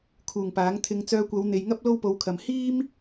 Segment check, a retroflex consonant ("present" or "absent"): absent